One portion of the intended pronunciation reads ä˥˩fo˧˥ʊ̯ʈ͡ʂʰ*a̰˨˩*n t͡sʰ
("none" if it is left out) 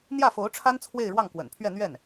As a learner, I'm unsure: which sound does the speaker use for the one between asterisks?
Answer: a˥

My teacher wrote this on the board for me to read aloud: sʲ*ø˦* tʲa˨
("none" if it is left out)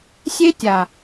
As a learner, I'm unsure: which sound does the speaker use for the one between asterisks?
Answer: e˦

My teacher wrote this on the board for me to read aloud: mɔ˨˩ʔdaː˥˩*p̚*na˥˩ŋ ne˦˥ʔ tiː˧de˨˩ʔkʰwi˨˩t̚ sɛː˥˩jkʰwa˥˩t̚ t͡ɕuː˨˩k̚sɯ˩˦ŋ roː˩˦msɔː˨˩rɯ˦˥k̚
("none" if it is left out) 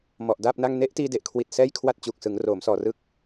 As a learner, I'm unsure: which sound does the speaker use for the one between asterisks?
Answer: p̚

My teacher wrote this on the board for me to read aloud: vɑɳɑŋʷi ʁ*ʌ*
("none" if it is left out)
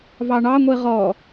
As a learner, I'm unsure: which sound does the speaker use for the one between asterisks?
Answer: ɔ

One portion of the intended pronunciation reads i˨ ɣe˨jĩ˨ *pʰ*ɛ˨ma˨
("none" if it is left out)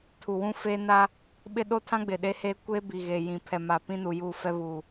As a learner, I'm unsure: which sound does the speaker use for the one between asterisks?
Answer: pʰ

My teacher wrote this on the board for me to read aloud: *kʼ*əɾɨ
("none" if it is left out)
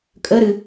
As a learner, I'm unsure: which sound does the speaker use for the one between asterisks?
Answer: kʼ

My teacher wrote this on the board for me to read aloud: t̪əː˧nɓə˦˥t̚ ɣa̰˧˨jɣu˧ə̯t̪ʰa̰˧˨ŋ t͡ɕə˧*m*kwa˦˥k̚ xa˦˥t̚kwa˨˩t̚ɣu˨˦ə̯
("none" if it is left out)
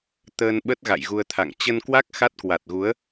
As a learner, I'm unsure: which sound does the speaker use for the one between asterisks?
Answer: n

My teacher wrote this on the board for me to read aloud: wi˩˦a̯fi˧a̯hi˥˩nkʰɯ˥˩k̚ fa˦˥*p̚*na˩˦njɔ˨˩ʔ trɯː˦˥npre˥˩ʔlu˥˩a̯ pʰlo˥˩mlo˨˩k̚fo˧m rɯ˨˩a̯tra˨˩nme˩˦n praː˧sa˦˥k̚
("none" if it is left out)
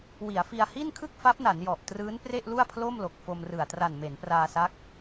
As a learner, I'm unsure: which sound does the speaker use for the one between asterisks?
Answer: p̚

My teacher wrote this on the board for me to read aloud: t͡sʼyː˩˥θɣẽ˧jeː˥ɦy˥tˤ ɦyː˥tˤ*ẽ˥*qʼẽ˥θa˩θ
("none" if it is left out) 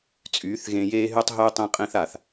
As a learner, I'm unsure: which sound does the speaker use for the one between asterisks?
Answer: ẽ˥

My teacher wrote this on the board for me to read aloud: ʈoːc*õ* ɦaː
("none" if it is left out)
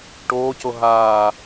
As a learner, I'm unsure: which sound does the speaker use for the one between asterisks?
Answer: o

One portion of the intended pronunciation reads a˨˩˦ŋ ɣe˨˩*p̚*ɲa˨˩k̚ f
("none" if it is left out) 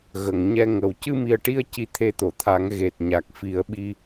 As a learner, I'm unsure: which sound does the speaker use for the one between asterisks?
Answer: t̚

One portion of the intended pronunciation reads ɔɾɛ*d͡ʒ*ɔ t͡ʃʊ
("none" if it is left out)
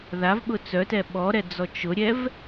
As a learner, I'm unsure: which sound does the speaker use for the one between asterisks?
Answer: d͡z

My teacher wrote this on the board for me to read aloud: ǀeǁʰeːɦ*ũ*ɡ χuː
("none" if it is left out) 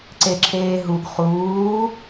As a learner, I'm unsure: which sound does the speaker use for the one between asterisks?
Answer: u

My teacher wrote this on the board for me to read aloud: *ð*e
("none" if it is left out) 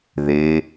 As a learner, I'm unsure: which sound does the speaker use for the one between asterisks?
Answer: ð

